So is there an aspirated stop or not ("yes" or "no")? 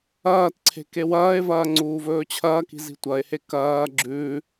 yes